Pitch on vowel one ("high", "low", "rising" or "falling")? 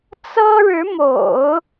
high